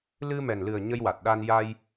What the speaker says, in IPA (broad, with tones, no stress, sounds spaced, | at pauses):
l ɨ˧ m ɛ˨˩ n l ɨ˨˩ ə̯ ɲ ə˧ j w a˨˩ t̚ ɗ a˧ n j a˧ j